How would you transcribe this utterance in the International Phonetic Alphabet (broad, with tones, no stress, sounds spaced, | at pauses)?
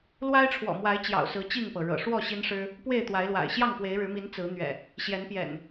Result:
l w a˦ ɪ̯ ʈ͡ʂʰ w ɔ̰˨˩ m w a˨˦ ɪ̯ t͡ɕ j ɑ̰˨˩ ʊ̯ s ɹ̩˨˦ t͡ɕ i˥˨ ŋ p ɤ˩ ɻ ɤ̰˨˩ ʂ w ɔ˥˨ ɕ i˦ n ʂ ɻ̩˦ | p w e˥˨ ɪ̯ t̪ w a˨˦ ɪ̯ l w a̰˨˩ ɪ̯ ɕ j ɑ˥˨ ŋ p w e˨˦ ɪ̯ ɻ ɻ̩˨˦ m i˨˦ n t͡s ɹ̩˨˦ n̪ ɥ ɛ̰˨˩ | ɕ j ɛ˨˦ n p j ɛ̰˨˩ n